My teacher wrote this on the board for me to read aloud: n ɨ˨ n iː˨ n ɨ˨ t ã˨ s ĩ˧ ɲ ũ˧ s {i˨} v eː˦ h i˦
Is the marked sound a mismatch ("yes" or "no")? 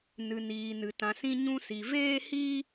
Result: no